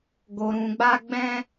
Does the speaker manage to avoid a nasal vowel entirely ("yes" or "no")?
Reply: no